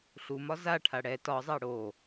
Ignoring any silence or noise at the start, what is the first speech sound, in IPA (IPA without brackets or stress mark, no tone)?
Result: ɬ